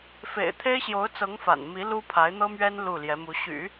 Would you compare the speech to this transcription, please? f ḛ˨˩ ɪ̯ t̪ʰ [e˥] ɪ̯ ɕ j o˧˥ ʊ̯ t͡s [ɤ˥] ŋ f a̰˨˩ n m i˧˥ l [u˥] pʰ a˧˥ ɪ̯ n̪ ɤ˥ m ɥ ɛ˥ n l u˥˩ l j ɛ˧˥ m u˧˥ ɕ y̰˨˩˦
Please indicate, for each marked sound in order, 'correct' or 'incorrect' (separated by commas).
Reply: correct, incorrect, correct